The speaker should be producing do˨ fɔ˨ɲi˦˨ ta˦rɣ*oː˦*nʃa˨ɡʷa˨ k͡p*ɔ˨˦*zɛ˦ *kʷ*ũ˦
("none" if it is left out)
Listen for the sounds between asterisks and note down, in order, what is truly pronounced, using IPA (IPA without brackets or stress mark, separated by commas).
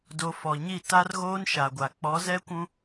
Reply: oː˦, ɔ˨˦, kʷ